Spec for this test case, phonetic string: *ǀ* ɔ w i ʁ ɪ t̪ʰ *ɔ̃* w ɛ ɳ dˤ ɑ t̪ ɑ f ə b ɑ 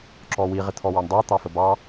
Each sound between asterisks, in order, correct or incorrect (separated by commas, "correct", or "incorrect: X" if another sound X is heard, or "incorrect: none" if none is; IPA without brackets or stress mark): incorrect: ǁ, incorrect: ɔ